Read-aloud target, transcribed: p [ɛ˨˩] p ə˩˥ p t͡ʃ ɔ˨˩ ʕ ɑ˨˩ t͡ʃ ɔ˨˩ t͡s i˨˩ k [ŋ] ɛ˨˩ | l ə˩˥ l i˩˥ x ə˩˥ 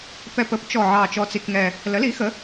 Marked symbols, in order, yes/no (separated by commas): yes, yes